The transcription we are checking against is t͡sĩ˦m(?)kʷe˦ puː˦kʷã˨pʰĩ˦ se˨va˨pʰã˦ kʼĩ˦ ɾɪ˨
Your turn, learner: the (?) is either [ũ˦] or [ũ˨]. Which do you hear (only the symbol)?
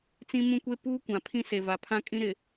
ũ˦